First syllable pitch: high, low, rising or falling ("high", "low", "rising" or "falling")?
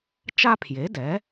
high